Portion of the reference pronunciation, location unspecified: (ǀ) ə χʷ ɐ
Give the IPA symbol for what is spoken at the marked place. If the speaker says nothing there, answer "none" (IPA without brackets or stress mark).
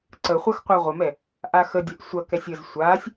ǀ